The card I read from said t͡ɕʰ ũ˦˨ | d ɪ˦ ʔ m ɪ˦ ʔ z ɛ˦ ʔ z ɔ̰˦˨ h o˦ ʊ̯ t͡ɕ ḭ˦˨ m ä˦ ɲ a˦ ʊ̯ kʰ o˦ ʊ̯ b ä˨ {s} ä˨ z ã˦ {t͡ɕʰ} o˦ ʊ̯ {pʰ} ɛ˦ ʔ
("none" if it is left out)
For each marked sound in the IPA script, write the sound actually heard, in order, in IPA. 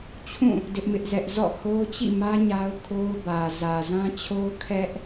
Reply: z, t͡ɕʰ, kʰ

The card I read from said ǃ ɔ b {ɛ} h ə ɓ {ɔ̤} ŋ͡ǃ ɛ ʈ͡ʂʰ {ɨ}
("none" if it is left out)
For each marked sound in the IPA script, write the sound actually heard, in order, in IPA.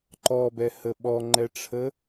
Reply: ɛ, ɔ, ə

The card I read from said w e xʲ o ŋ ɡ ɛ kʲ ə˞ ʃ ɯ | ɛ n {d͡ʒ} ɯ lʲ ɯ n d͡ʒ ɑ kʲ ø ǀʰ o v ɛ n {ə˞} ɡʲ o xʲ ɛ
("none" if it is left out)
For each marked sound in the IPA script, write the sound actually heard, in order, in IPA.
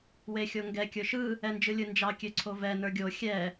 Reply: d͡ʒ, ə˞

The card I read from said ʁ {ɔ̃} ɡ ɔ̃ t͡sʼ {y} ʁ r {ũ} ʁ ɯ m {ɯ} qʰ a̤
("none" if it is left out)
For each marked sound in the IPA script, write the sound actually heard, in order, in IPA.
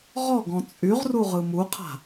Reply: ɔ, y, u, u

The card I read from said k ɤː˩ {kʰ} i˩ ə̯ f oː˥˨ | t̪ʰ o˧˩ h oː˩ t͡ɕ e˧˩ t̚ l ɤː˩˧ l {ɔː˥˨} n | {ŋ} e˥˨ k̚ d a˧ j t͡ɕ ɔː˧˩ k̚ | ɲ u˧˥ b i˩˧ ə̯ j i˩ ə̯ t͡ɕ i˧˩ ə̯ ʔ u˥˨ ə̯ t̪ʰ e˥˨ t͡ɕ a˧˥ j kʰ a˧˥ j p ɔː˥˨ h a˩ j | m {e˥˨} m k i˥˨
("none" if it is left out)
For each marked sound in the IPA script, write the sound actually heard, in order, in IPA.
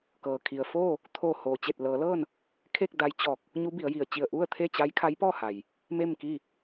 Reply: kʰ, ɤː˥˨, kʰ, e˥˨

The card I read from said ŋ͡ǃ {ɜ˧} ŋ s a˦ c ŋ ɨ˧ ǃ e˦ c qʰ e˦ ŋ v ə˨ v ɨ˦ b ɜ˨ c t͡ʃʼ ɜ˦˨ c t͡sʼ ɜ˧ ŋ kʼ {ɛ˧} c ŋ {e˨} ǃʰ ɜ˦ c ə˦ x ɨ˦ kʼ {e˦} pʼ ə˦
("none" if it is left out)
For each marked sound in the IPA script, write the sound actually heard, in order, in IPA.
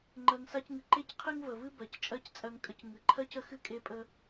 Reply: ɜ˧, ə˧, ɨ˨, e˦

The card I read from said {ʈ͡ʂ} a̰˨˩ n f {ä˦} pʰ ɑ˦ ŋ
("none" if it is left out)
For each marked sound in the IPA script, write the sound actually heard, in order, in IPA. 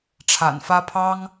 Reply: ʈ͡ʂʰ, ä˦

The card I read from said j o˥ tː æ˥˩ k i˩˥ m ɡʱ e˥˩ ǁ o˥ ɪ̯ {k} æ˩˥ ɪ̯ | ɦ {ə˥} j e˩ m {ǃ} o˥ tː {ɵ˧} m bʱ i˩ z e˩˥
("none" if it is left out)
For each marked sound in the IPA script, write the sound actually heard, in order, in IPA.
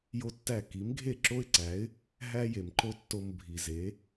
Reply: ǀ, æ˥, ǃ, o˧

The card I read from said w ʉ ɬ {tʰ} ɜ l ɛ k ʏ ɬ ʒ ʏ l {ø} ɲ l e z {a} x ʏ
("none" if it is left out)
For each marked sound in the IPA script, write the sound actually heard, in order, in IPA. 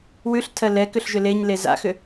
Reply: tʰ, e, a̰

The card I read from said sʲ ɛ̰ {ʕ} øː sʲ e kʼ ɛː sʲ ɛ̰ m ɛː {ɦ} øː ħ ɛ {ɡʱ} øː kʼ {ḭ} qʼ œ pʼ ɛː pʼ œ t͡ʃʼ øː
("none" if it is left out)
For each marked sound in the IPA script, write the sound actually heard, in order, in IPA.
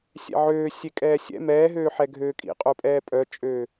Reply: ʕ, ɦ, ɡʱ, ḭ

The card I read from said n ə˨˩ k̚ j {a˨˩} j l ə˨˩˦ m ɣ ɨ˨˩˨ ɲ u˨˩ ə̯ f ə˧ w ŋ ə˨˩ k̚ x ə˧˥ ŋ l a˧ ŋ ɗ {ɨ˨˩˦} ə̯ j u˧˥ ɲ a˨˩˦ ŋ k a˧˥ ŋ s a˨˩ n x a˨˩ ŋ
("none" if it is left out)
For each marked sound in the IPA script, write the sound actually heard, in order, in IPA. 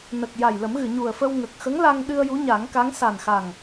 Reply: a˨˩, ɨ˧

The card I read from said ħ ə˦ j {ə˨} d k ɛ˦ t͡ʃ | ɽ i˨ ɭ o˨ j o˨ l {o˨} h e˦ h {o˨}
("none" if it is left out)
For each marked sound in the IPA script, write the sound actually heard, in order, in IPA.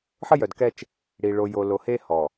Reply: œ˨, o˨, ɔ˨

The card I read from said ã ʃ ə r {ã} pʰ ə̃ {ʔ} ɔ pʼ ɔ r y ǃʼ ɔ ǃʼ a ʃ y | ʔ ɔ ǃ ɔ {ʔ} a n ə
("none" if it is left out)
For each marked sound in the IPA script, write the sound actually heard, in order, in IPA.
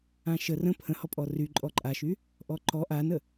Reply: ə̃, h, ʔ

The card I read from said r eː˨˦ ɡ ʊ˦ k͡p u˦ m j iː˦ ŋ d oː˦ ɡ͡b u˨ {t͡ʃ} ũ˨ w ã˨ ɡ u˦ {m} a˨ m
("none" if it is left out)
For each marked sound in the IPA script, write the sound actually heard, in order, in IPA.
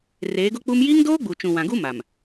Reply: t͡ʃ, m

